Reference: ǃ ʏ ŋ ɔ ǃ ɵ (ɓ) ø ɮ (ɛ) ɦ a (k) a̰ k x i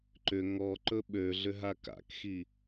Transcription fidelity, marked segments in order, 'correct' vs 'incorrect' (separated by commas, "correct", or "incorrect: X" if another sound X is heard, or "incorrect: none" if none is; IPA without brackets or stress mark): correct, incorrect: ʏ, correct